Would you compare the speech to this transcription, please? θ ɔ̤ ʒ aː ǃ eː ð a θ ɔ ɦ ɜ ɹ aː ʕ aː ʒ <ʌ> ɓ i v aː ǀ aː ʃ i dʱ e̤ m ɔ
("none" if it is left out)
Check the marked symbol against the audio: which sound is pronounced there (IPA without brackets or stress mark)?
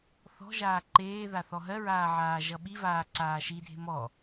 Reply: ʌ